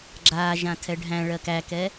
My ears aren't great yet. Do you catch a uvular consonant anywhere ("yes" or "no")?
no